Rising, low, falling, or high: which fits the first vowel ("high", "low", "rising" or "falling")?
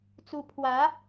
rising